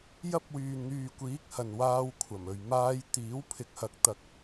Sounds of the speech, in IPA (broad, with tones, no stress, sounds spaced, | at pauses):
j ɐ˥ p̚ w yː˨ n n̪ yː˨ kʷ iː˨˥ k̚ h ɐ˨ n w aː˧ w kʷʰ ɐ˨˩ m ɵ˨ ɥ m aː˧ j t̪ iː˨˥ w pʰ ɪ˨˥ k̚ h ɐ˨˥ k̚ t̪ ɐ˨ k̚